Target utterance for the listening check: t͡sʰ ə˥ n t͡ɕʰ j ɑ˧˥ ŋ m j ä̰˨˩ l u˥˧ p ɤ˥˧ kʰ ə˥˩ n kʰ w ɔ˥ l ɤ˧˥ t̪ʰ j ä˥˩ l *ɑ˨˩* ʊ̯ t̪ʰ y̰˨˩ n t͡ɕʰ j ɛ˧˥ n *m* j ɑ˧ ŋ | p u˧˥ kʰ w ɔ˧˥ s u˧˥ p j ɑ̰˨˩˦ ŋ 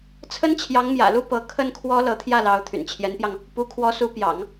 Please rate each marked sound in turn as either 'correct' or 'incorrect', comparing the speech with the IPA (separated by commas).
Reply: incorrect, incorrect